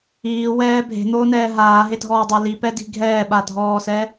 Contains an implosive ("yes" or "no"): yes